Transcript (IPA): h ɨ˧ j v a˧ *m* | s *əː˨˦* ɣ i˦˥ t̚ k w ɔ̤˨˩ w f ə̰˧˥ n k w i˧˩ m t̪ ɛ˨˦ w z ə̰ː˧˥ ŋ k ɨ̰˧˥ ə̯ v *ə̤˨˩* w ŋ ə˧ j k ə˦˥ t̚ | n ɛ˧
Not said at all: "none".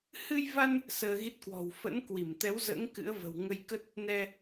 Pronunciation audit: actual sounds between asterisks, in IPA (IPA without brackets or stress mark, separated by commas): n, əː˧, ə̤˨˩